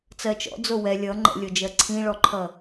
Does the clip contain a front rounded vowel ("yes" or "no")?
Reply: no